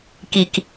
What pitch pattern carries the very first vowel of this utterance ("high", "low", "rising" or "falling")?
low